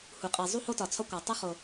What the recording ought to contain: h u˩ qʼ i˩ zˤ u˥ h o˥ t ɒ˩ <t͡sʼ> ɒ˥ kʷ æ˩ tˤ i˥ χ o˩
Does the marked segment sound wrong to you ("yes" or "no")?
yes